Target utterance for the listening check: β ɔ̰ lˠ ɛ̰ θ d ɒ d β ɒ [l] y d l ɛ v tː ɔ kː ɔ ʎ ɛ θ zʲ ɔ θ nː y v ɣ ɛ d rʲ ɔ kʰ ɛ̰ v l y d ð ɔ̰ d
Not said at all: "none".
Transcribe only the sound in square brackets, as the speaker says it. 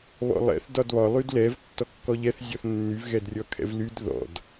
lˠ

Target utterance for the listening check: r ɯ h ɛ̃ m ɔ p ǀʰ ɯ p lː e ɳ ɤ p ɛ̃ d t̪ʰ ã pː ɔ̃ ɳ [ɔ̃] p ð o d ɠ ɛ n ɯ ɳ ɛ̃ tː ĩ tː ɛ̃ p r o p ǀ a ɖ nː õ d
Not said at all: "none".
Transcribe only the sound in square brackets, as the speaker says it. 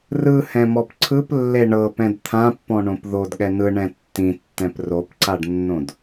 õ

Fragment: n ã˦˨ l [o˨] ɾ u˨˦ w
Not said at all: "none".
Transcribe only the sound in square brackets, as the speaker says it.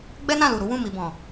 u˨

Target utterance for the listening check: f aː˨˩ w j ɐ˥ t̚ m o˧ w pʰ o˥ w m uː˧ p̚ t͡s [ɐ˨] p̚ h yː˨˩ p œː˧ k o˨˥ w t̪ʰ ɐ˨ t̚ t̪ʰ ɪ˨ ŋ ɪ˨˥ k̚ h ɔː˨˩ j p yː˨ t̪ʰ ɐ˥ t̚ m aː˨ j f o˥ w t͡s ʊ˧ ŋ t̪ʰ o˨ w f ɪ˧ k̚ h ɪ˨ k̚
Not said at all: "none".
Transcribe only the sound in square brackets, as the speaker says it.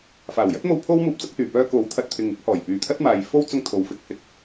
ɐ˥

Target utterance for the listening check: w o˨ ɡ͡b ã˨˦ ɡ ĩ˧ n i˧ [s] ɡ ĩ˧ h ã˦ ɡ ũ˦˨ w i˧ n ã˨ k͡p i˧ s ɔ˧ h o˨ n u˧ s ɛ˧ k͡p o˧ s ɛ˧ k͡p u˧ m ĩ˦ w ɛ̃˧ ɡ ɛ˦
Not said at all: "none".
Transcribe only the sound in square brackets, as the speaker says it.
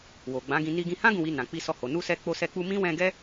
none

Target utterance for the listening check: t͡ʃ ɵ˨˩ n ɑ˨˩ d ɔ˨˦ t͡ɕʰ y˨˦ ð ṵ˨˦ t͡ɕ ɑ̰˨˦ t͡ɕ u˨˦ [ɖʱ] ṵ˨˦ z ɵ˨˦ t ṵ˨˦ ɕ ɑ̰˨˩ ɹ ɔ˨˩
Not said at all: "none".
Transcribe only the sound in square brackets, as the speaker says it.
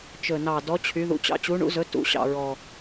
ɳ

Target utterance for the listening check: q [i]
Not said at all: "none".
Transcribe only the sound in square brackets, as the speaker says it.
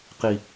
i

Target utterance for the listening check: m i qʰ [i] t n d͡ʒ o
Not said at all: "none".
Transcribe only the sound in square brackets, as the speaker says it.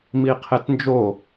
e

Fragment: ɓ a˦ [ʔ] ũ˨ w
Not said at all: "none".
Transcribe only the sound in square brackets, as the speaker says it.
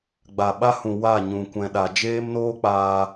h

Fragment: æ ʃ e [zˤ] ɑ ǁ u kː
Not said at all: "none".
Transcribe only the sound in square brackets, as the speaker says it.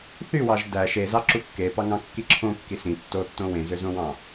z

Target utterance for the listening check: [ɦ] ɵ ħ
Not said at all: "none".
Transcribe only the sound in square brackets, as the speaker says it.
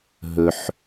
ɦ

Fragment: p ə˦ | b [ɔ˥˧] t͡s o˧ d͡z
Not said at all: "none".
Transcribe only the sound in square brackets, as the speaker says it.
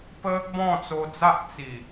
ɔ̃˥˧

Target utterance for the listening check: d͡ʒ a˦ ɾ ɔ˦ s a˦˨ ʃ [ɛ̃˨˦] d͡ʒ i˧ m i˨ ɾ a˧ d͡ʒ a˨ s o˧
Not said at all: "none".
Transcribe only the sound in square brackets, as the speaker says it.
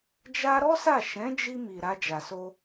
ɛ̃˨˦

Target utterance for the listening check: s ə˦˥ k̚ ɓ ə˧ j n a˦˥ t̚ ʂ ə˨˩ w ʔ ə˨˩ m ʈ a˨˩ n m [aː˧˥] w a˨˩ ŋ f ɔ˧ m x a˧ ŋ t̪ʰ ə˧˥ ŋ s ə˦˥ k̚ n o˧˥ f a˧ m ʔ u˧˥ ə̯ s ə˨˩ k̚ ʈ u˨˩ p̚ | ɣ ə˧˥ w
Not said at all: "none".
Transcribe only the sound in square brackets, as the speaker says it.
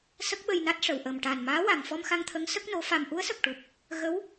aː˧˥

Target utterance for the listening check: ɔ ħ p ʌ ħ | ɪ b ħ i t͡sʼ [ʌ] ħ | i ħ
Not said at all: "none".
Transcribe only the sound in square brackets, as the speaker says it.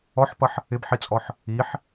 ɔ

